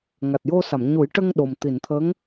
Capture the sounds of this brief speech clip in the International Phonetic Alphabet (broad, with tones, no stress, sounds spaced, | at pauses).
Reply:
ŋ a˨˩ t̚ j o˧ s a˨˩˨ m ɲ u˨˩˦ j ʈ ə˧ ŋ ɗ o˨˩ m t̪ i˨˩˨ n t̪ʰ ə˧˥ ŋ